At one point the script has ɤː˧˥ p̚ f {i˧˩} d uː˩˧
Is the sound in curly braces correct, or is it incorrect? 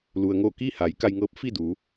incorrect